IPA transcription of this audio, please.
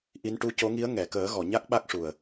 ʔ i˧˥ n ʈ u˧˥ c o˧˥ ŋ i˧˥ ə̯ ŋ ɛ˨˩˨ k əː˨˩˦ ɣ ɔ˨˩˨ ɲ a˦˥ k̚ ɓ a˦˥ k̚ ʂ u˨˩ ə̯

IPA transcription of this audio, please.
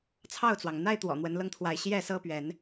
t͡sʰ ɑ˥˨ ʊ̯ t͡s w ɑ˩ ŋ n̪ a˦ ɪ̯ t̪ w ɔ̰˨˩ n̪ w ə˨˦ n l ɤ˧ ŋ t̪ʰ w a˨˦ ɪ̯ ɕ j ɛ˥˨ s ɤ˦ p ɥ ɛ˨˦ n

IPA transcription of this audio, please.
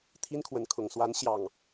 t̪ʰ i˦ n kʰ w ə˨˦ n kʰ ʊ˨˩ ŋ s w a˨˦ n ɕ j ɑ˨˩ ŋ

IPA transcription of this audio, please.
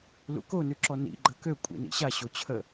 l ṵ k o n ʉ ǁ ɔ n ḭ ɡ͡ǃ ə k ø kʷʼ ḭ n ḭ ɕ a ɕ o t͡ɕʰ ə

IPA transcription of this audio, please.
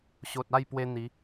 ɕ o˨ t̚ a˥˧ j p w e˧ n̪ i˨˦

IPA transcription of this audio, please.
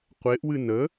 qʷ e ʔ w ɨ n ə

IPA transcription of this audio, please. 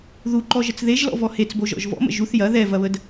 ð u ǃ ɔ ʒ ə t͡s ð e ʒ l ɔ̰ v ɔ h e t͡s b o ʒ ɔ̰ ʒ v ɔ̰ m ə̰ ʒ u θ j ɐ ð ɛ v ɐ β ə d

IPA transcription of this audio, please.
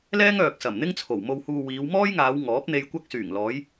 l ɛː˥ ŋ œː˨ k̚ s ɐ˨˩ m n̪ ɪ˥ ŋ t͡sʰ o˨˩ w m o˨ w h uː˨ w iː˨˧ w m ɔː˥ j ŋ aː˨˧ w ŋ ɔː˨˥ p̚ n̪ e˧ j kʷ ɐ˧ k̚ s yː˨˩ ŋ l ɔː˨˧ j

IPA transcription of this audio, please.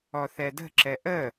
ɔ θ ɛ d ə̤ ǁ ɛ ʔ ə

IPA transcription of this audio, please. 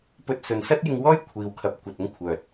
p ɵ˧ t̚ s ɵ˨ n s ɐ˥ t̚ j ɪ˧ ŋ w ɔː˥ j kʷʰ iː˨ w kʰ ɐ˨˥ p̚ kʷ ɐ˨ t̚ ʊ˥ ŋ kʷʰ œː˨ t̚

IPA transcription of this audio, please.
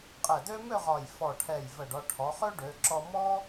qʼ ɛ˧˩ d ø˥ m ø˥˧ ʁ ɒ˧˩ j f ɔ˧˩ ʈʰ ɛ˧˩ j v ə˧˩ ɖ ɒ˧ ʈʰ ɔ˩˧ χ ø˥ ɖ ø˩˧ ǁ ɔ˧ m ɔ˥

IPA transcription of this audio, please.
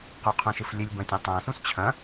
q u qʰ ũ ʃ ɨ f lʲ ɨ lʲ b ɐ̃ tʲ ɐ̃ tˤ ã s ũ s t͡ɕʰ ɐ̃

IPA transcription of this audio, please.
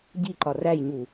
ɟ i ǃ ɒ r æ j ɲ u

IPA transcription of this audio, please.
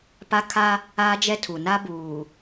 p a˦ kʰ a˦ | aː˦ d͡ʒ ɛ˦ tʰ u˨ n a˦ b uː˨

